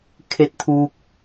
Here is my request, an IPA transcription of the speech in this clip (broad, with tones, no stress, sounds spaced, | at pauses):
kʰ e˧ t̚ t̪ʰ uː˧ k̚